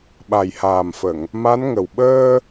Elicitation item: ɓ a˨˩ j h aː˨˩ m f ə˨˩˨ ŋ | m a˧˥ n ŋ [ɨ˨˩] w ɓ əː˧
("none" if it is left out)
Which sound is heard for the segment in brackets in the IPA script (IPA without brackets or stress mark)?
ə˨˩